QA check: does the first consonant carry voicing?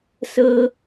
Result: no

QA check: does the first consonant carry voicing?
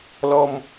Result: yes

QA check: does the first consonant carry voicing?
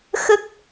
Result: no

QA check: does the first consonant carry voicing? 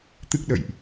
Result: no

